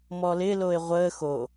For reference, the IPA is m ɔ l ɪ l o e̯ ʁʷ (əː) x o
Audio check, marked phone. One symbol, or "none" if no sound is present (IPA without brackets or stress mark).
əː